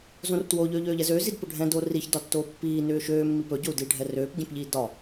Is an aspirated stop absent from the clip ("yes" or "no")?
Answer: yes